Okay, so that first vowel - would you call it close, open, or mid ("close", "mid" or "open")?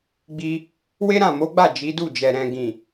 close